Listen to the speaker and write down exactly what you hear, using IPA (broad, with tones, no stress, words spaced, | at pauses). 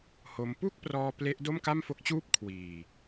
ho˧m pu˥˩k̚prɔː˧ ple˦˥ʔ do˥˩mka˥˩mfo˦˥k̚t͡ɕuː˥˩p̚ kʰwiː˨˩